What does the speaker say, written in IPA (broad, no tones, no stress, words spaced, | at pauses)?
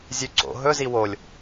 zʲʉǀo̰ ɦɵzi wolʲ